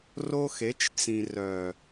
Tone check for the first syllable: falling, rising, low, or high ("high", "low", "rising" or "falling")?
high